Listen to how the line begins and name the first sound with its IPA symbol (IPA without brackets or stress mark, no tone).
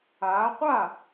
aː